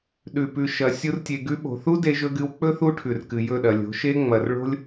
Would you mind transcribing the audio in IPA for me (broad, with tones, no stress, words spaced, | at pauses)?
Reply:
ɗʉ˨pʉ˨ʃɐ˨ sʲu˦rtʲe˧ ɡʉ˧ɓo̤˨θu˦ de˧ʒɵ˧ɡɨ˧wk͡pɵ˦ θu˦ʈʰʉ˨rkɨ˨ jɵ˦˨ɗɐ˨lʲo̤˨˦ ʃe˦ ŋ͡mɐ˨rɭo̤˦lʲ